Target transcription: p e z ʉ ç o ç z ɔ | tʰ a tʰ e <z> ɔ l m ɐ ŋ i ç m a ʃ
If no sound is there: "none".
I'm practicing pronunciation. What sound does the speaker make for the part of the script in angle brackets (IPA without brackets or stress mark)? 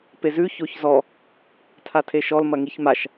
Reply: ʃ